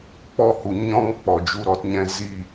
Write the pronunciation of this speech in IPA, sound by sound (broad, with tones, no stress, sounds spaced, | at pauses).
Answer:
k͡p ɔ˦˨ h u˨ ɲ ɔ̃˦ ŋ k͡p ɔ˨ d͡ʒ u˧ ɾ ɔ˧ t ɲ ɛ̃˧ z i˦˨